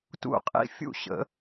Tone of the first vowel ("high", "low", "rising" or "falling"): falling